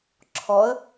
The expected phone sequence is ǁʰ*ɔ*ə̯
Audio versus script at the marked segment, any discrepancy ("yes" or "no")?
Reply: no